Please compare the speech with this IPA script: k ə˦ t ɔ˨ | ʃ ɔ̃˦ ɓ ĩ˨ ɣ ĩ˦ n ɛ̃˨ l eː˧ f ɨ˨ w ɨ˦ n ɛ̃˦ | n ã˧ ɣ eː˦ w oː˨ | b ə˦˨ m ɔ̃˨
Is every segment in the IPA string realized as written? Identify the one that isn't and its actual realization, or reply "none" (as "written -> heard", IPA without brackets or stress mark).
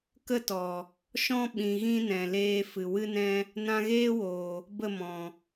none